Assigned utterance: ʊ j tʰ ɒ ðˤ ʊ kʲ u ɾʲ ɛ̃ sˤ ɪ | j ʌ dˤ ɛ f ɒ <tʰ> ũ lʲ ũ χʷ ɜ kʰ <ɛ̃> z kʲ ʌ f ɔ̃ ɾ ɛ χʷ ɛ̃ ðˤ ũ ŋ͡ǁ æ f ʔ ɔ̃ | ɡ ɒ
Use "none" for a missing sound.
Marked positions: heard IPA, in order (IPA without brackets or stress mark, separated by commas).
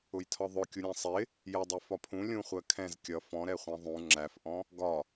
pʰ, ɛ̃